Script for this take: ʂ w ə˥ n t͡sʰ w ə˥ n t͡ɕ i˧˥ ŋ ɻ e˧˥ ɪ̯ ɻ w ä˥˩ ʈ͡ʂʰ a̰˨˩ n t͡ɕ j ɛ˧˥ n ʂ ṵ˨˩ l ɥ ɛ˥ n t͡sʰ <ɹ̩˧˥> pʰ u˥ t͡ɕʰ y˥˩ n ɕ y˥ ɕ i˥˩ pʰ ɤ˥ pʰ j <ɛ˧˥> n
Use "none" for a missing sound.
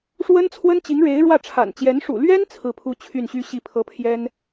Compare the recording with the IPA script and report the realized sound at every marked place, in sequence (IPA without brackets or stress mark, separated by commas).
ɹ̩˥˩, ɛ˥